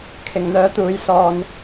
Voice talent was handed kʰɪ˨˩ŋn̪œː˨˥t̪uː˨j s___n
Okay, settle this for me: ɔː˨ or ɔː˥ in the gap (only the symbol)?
ɔː˨